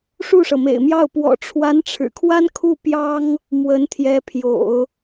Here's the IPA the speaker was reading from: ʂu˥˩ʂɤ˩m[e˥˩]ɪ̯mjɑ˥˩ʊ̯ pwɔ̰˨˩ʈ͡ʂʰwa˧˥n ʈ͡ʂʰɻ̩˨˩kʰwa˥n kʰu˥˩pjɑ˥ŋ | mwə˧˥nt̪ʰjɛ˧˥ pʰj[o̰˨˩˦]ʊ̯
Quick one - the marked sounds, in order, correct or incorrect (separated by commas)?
incorrect, correct